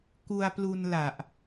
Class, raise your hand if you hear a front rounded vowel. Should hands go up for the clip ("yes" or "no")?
no